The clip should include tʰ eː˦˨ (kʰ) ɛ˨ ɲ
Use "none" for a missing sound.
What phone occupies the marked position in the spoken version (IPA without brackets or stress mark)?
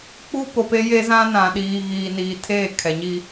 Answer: kʰ